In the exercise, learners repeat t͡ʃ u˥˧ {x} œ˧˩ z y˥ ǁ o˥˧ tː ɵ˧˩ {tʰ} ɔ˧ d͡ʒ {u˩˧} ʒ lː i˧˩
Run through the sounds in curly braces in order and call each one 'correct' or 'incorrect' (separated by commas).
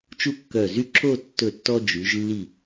incorrect, incorrect, incorrect